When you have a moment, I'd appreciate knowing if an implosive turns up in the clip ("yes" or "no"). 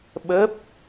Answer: yes